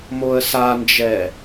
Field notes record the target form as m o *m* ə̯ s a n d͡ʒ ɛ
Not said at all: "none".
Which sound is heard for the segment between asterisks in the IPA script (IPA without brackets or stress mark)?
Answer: none